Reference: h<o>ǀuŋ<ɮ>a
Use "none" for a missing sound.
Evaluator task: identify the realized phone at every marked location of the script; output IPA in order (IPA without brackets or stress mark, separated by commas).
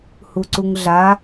u, ɮ